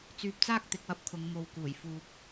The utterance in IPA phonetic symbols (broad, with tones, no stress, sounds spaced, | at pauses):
t͡s yː˨ p̚ t͡s aː˥ k̚ t̪ ɪ˨ k̚ w ɐ˥ p̚ kʰ ʊ˨˧ ŋ m o˧ w k uː˨˩ j f uː˧ p̚